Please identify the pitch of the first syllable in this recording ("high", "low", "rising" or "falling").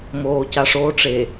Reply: low